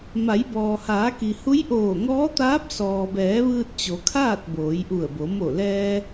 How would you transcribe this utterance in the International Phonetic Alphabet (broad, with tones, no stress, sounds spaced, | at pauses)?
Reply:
m a˩˧ j b ɔː˩ h aː˩˧ k i˩ h u˧˥ j ʔ oː˧˩ ŋ ɔː˧˥ t̪ aː˧˥ p̚ s ɔː˩ b ɛː˩˧ ʋ ɯː˧ t̚ t͡ɕ o˩˧ kʰ aː˥˨ t̚ b oː˩˧ j ʔ u˧˩ ə̯ b o˩˧ m o˧˩ l ɛː˧